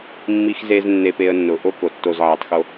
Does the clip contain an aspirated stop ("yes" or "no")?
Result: no